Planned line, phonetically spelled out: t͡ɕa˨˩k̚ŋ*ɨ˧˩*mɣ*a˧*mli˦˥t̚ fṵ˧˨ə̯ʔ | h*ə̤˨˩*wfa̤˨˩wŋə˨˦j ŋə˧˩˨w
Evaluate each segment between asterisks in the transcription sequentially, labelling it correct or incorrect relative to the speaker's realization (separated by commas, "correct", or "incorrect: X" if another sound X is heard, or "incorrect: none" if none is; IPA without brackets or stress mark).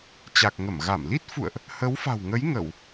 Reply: incorrect: ə˧˩, incorrect: a˧˩, incorrect: ə˨˦